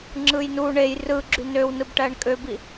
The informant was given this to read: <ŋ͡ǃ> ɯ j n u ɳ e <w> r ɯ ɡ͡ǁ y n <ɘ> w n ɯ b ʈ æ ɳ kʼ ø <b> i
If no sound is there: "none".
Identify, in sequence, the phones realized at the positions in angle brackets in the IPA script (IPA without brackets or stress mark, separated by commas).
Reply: ŋ͡ǁ, j, ø, b